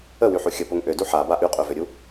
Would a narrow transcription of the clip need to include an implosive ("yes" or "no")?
no